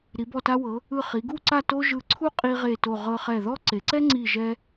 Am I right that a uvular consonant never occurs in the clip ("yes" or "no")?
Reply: no